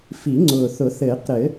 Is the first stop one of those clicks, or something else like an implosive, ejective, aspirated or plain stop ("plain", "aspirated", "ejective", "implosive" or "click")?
click